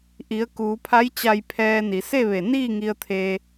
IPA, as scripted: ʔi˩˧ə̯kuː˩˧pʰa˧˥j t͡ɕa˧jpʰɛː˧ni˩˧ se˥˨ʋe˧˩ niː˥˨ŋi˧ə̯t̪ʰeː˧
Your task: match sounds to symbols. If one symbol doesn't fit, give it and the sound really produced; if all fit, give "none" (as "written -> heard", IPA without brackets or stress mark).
none